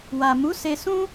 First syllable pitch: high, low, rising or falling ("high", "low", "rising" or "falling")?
low